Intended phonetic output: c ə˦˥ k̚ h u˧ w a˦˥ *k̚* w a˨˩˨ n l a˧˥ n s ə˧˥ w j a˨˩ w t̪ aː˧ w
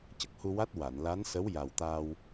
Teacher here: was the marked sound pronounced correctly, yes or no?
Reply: no